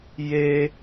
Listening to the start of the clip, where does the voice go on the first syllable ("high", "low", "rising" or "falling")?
high